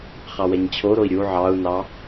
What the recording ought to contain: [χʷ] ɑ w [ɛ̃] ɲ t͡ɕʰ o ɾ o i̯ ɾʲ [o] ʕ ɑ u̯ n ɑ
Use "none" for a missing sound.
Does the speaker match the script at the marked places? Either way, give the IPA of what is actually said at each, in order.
χ, ɛ, u

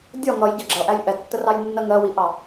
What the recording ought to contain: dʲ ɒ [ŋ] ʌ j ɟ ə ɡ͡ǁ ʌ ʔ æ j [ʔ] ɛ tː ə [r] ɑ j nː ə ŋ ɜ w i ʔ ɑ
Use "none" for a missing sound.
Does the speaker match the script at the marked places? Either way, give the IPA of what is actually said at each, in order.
ŋ, ʔ, r

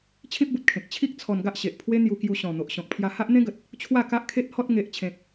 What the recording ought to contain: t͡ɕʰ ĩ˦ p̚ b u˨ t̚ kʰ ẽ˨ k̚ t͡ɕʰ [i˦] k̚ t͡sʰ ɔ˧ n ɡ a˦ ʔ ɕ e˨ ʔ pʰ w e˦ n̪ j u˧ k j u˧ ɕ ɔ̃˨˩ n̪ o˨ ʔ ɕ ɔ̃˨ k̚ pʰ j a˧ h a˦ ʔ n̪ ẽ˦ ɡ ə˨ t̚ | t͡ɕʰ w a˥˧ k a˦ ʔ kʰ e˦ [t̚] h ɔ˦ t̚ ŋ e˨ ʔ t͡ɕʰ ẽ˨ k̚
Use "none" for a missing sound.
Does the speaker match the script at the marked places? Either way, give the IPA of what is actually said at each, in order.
i˦, t̚

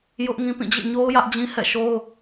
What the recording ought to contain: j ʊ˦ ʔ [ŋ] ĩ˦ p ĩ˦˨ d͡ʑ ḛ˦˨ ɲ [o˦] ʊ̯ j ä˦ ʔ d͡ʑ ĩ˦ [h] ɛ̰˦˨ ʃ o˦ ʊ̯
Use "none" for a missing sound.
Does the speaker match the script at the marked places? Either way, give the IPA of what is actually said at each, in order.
ŋ, o˦, h

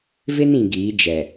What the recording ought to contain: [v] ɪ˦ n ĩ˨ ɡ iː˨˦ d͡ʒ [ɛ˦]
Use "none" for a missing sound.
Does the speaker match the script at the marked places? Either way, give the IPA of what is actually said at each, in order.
v, ɛ˨

